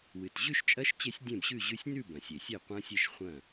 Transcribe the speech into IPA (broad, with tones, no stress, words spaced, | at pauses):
wɨ˩tʑʉ˥˨ʃt͡ʃʼɐ˦˥ʃ t͡ɕe˦˥sʲdʲẽ˥˨bɕʉ˥˨ʑʉ˦˥sʲ nʉ˥˨bɐ̃˩sʲe˩ sʲe˥˨qʷɐ̃˦˥sʲe˥˨ʃχʷɐ̃˥˨